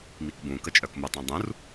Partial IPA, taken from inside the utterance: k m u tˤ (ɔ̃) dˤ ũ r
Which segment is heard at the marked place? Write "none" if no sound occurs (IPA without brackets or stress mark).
ɔ̃